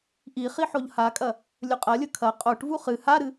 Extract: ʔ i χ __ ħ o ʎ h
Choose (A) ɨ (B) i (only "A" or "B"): B